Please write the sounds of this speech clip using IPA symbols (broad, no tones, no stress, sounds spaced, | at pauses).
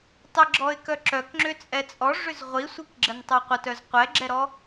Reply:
tˤ ɪ ɡ͡ǁ ɔ ɪ̯ k œ ǁ œ k ŋ͡ǁ ʏ t͡sʼ ɛ t͡sʼ ɔ ʐ ʏ z ʁʷ i sʷ i k ɡ͡ǁ ə n tˤ œ qʷ ə t œ z qʷ ɛ ɡ͡ǁ ɛ ɾ ɔ